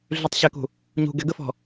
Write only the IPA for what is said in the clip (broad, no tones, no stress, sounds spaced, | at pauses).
ɮ y tˤ ɕ ɛ k ṳ | ɲ ṳ ɡ ɛ ɡ ə f ɔ̤